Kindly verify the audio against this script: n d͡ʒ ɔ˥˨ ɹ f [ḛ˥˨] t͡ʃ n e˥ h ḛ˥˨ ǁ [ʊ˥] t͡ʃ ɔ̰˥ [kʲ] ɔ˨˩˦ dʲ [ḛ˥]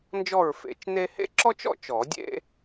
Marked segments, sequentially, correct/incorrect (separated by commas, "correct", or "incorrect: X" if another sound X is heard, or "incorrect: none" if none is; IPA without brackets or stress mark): incorrect: ḛ˨˩˦, incorrect: ɔ˥, incorrect: t͡ʃ, correct